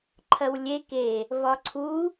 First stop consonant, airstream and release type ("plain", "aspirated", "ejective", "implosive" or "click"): click